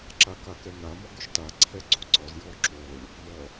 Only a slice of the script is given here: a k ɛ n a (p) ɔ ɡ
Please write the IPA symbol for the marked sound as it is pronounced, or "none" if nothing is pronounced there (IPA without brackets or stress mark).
m